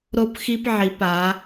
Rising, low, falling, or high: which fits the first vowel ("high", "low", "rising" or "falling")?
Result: high